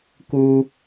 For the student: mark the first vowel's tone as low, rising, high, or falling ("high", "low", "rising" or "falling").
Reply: high